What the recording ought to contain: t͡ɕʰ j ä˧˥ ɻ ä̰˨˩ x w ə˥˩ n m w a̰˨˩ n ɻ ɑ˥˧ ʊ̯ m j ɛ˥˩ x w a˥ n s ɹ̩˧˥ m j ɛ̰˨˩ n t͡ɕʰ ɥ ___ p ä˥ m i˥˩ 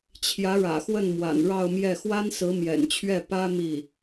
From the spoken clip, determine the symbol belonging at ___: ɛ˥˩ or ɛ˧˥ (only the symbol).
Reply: ɛ˥˩